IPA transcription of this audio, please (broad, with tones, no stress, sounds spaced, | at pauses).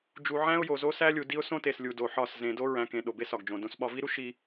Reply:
d͡ʒ u˨ ʕ æ̃˦ ʊ̯ j o˨ z o˦ s æ˦ lʲ u˨ d i˦ ʊ̯ s õ˦ t e˨ s lʲ u˨ d o˨ ħ ɒ˦˨ s z ẽ˨ d o˦ ɹ æ̃˨ k ẽ˨ ɗ o˨ b e˦ s ɒ˨ ɡ d͡ʒ õ˨ d õ˨ s ɓ ɒ˨ v i˦ ɾ u˦ ʃ i˦